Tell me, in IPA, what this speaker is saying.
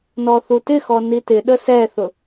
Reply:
nɔθutɪxɔ nitɪɗə sɛθʊ

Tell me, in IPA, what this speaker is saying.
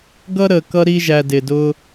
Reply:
ɡʌ˥ɾə˧˩ kʌ˥ɾi˥ʒæ˧ dɪ˧dʊ˥

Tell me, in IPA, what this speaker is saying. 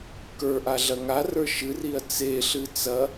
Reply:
kə˞ʔa ɮɐŋarə˞ ʃɨriɐ̯ t͡seɬɨ t͡sɐ

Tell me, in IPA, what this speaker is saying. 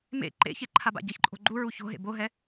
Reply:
mḛ ǃḛçe ǃʰaba̰ɟɤçǃʼo̤ ɡ͡ǃuɹu ço̤ɦḛ boɦɛ

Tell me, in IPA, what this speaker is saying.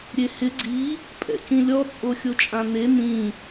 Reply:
ɾʲehɪ ɡ͡ǀi | pʼɛ̰cĩlʲɔ t͡sʼoxʲot͡ʃʼãn̪e n̪ĩ

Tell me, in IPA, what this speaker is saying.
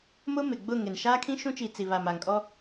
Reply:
mʊ˦ mɪ˨ ɡ͡bʊ˦˨ ŋɪ˨n ʃaː˦kʰĩ˦ʃũ˦t͡ʃi˨ t͡si˨βa˨m a˨ŋkʼɔ˦

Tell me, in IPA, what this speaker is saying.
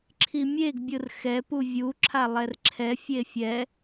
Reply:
ǁʰimʲeɡ bʲɯrxɛ puvʲu ǁʰalˠɛrǁʰɛ fʲefʲɛ

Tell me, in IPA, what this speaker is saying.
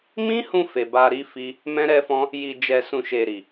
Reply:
mĩ˦hũ˧ fe˨ba˧ɾi˦ fi˦ | mɛ̃˦ɾɛ˦fɔ̃˦ | ji˨d͡ʒɛ˨sũ˨ ʃe˨ɾi˨

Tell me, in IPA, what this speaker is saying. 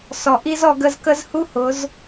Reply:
sɔ˨ ʔi˦z ɔ˨ ɡə˧zkə˦zhu˦hʊ˨˦z

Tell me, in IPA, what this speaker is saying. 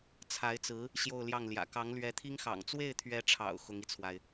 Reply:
t͡sʰa˧˥ɪ̯t͡sɹ̩˧˥ | ɕjo˥˧ʊ̯ljɑ˥˩ŋljä̰˨˩ kɑ˧˥ŋlɥɛ˧˥t̪ʰi˥ŋxɑ̰˨˩ŋ t͡swe˥˩ɪ̯t̪ʰɥɛ˧˥ʈ͡ʂʰɑ̰˨˩ʊ̯ xʊ˧˥ŋi˧t͡sʰwa˩ɪ̯

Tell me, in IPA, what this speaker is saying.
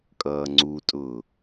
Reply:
kʼʌːŋ͡ǀutʼʊː

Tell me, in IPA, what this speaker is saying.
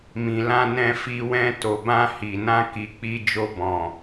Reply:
mĩ˨lã˧ nɛ̃˧fi˧wɛ̃˧ to˨bã˧ hi˨nã˧ ki˨k͡pi˧ d͡ʒo˧bɔ̃˨

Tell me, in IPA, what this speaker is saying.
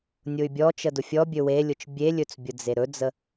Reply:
nʲʊy̯bʲɔt͡ʃə dʊfʲɔbʲɵ welʲʊt͡ʃ bʲelʲɵt͡s bʲʊd͡zeɾɵd͡zə

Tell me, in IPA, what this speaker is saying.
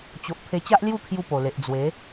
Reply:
t͡ɕo˨ʔ pʰe˧t͡ɕa˦ʔlju˥˧kʰju˧ po˨˩le˨ʔ d͡zwe˨˦

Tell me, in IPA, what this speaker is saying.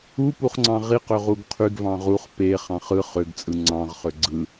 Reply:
upuχŋ͡ǀɑ̃ ʁiqøʁuɡ qʰyɡvɑ̃ ʁuχ peχɑ̃χ ɯ χøɡt͡sʼɯ ŋ͡ǀɑ̃ʁχø ɡ͡ǀɯ

